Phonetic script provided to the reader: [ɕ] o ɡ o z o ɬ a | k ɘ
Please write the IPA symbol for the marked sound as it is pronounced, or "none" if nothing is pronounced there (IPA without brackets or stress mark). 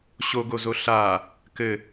ɕ